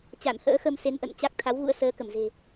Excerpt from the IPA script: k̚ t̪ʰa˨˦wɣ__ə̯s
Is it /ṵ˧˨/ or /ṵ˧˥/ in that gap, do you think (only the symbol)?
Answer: ṵ˧˥